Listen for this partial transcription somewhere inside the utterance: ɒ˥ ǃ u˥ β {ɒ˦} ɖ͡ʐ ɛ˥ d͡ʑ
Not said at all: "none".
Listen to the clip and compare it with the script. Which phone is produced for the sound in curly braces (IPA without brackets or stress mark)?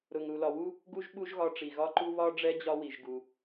ɒ˥